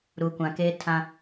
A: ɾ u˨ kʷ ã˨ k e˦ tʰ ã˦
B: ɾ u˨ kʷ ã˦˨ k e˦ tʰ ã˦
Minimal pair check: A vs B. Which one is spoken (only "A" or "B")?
A